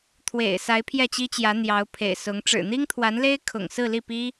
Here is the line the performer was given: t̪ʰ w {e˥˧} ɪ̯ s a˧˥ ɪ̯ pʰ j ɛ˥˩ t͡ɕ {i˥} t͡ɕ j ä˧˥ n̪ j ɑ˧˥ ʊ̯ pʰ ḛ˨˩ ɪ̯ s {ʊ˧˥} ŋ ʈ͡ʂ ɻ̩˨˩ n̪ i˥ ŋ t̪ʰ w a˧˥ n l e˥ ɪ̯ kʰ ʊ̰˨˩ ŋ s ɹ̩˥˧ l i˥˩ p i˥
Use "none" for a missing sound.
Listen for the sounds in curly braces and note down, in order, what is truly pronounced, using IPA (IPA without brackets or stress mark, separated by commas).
ḛ˨˩, i˥, ʊ˧˥